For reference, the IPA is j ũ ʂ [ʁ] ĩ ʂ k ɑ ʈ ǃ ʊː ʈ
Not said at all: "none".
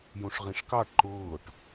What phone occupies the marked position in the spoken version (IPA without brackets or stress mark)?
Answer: ʁ